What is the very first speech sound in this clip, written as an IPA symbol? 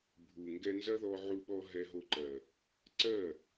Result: bʱ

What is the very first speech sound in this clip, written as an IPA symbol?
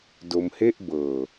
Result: d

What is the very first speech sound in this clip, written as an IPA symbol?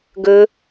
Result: ɡ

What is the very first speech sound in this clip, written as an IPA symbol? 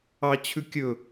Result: ɑ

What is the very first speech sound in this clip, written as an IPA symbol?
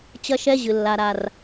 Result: t͡ɕ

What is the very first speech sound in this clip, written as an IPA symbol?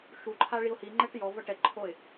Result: ʃ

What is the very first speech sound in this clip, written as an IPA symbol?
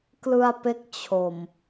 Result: k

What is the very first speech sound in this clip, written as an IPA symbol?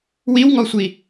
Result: w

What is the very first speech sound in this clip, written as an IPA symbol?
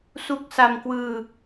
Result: s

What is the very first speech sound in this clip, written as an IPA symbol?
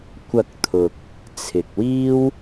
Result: kʷ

